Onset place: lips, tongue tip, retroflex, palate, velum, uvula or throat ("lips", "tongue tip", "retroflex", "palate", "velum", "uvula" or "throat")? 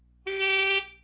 velum